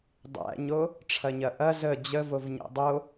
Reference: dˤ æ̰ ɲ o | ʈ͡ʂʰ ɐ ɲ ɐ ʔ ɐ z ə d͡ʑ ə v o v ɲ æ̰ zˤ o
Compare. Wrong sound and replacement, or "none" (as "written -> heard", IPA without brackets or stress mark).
zˤ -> dˤ